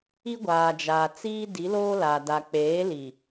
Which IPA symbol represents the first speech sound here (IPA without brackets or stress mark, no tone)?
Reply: i